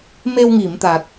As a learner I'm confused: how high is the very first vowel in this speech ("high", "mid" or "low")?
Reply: mid